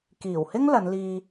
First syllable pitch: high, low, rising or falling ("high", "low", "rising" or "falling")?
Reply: low